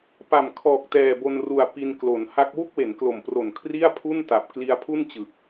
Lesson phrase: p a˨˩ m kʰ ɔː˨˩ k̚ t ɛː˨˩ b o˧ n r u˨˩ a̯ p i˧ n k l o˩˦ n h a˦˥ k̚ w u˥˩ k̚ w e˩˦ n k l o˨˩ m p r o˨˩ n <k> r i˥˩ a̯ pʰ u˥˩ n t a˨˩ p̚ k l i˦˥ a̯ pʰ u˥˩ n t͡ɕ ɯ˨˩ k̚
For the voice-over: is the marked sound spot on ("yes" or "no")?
no